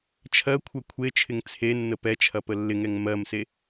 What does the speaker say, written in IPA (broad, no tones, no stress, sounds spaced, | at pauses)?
t͡ʃʰ ɜ kʷʰ ɛ kʷʰ e t͡ʃʰ ɪ ŋ t͡sʰ e nː ə p ɛ t͡ʃʰ ɐ p ə lː ɪ ŋ ɛ ŋ m ɜ m s e